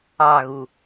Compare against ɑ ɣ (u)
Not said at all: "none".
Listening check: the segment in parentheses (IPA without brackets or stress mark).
u